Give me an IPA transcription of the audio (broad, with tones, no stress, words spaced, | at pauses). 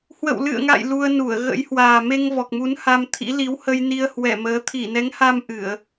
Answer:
hwə̰˧˨wlɨ̰˧˨ə̯ŋa̰˧˨j lu˧ə̯nu˧˩ə̯ ɣə̰˧˥jhwaː˨˩ me˧ŋvɔ˨˩k̚mu˨˦n ha˧mt̪ʰḭ˧˥ li˨˦whə˧j ni˧ə̯hwɛ˧˩məː˨˦ t̪ʰi˧˩nɛ˨˦ŋha˧m ʔɨ˧˩˨ə̯